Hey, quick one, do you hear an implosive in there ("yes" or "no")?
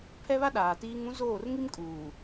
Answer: yes